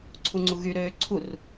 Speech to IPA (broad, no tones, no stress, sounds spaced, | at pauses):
ǀʰ u ŋ͡ǀ u ɣ y ɾ øː ǀʰ u r